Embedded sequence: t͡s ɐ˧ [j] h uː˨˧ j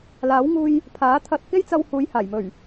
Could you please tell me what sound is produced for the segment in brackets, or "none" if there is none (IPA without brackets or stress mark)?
w